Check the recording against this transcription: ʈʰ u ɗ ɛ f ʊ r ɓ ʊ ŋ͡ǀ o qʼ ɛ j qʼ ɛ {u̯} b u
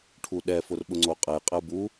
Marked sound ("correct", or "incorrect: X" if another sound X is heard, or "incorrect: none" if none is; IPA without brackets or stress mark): correct